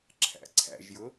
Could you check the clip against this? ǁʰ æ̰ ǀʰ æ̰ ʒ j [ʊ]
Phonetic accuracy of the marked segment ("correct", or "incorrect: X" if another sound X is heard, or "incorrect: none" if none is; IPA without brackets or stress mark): correct